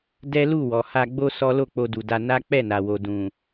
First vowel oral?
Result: yes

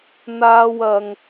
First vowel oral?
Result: yes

